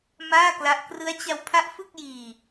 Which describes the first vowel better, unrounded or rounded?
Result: unrounded